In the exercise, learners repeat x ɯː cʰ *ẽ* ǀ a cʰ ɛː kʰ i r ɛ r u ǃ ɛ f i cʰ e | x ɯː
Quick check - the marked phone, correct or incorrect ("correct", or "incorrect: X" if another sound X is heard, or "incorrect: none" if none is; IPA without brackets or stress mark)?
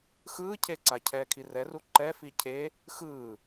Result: incorrect: e